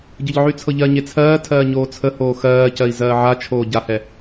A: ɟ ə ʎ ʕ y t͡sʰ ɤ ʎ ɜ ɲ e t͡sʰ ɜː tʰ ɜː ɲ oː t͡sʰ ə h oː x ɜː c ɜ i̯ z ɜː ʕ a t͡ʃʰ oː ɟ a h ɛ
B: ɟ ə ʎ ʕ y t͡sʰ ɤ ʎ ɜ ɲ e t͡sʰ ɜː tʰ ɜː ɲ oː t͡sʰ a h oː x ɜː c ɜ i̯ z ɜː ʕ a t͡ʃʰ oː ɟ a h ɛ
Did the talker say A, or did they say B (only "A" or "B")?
A